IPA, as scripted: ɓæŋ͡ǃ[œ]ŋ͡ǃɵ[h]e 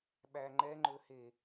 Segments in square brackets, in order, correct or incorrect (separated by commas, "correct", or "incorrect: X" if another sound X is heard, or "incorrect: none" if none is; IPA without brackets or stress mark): incorrect: ɛ, correct